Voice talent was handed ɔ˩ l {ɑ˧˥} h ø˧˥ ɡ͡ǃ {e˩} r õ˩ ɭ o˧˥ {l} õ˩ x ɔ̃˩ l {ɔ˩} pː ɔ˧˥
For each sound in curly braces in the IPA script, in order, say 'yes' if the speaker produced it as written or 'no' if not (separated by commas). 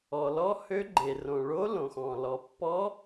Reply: no, yes, yes, yes